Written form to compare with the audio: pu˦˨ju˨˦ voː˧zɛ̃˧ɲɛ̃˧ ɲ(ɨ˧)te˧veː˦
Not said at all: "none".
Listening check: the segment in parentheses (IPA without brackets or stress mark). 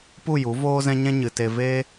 ɨ˨